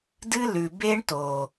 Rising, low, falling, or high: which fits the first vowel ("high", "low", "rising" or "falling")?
high